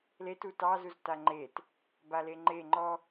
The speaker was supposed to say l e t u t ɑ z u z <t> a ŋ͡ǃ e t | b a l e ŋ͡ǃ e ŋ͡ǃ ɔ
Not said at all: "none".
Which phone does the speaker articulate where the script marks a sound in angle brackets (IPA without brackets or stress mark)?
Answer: t